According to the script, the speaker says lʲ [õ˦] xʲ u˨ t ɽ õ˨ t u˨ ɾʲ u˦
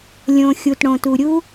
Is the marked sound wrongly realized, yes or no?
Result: yes